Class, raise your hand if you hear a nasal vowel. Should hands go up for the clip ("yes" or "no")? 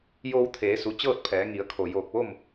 no